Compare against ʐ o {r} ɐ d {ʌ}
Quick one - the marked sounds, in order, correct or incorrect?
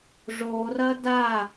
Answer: correct, incorrect: a

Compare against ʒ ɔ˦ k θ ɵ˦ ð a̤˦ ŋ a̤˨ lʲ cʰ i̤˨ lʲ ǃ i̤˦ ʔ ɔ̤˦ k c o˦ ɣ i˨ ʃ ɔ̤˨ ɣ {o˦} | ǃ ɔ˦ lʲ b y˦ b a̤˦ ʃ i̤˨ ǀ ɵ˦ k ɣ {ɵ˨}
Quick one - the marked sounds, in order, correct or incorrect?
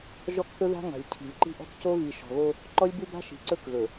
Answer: correct, correct

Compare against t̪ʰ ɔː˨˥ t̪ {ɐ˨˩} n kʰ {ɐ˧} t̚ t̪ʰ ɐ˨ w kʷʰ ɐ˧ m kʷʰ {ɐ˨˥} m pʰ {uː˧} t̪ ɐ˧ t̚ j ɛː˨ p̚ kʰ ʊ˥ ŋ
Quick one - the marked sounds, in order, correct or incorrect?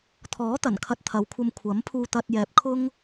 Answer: correct, incorrect: ɐ˨, correct, correct

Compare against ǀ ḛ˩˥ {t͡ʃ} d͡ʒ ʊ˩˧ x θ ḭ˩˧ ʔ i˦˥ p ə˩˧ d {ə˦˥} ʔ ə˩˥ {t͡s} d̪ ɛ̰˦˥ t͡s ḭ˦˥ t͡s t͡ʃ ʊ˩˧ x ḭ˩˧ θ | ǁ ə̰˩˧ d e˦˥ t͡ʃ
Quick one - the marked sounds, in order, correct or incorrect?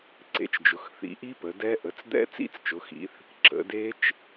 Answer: correct, incorrect: ɛ˦˥, correct

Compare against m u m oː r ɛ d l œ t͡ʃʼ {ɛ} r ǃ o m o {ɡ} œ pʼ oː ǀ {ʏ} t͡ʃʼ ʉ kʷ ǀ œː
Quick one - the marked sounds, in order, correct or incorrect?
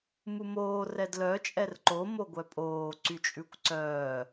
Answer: correct, incorrect: ɡʷ, incorrect: y

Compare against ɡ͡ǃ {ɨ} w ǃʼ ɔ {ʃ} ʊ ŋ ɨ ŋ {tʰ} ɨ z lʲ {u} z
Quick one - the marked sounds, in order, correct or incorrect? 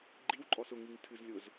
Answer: incorrect: i, incorrect: s, correct, incorrect: ʊ

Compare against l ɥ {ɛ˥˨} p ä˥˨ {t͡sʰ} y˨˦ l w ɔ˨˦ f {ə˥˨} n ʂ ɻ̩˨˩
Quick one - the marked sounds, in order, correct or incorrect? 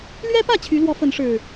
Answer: incorrect: ɛ˦, incorrect: t͡ɕʰ, incorrect: ə˨˦

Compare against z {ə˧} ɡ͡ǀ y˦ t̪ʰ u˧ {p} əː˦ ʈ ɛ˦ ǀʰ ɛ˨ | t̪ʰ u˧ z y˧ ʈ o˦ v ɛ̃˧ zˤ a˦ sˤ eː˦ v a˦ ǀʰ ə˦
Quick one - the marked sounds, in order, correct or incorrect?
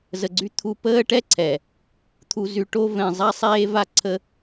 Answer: correct, correct

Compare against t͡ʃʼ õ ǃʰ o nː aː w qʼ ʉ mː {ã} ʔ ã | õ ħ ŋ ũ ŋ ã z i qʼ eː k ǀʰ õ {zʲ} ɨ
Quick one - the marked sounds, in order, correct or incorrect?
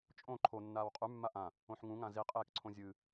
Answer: incorrect: a, correct

